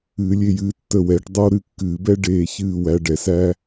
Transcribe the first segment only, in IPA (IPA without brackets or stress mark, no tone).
ɨː